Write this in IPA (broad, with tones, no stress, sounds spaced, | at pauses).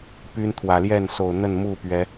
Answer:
p y˦ n t̪ʰ w ä˨˩ l j ɛ˥˨ n s o˨˩ ʊ̯ n̪ ə˥˨ n m u˥˨ p ɥ ɛ˨˦